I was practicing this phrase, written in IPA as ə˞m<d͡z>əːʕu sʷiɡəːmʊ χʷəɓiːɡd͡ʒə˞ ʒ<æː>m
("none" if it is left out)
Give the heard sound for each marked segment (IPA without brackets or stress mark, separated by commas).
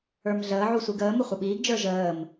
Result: ɮ, əː